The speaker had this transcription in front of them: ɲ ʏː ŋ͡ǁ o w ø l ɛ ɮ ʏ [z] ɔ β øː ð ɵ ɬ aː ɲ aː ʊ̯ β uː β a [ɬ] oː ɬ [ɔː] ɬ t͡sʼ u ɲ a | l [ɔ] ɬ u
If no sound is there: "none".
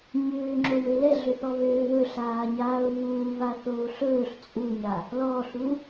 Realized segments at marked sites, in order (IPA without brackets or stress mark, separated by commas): θ, θ, ɵː, ɔ